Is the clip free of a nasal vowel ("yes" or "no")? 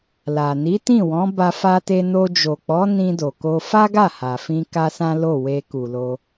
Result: no